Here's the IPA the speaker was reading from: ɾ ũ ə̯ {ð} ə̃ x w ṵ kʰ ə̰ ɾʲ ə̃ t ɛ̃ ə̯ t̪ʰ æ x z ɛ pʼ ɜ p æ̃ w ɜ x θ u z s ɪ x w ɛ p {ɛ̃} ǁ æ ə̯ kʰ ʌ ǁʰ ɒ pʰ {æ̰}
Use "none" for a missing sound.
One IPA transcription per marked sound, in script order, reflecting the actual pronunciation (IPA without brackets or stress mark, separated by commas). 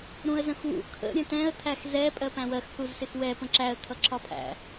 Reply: z, ə̃, æ̰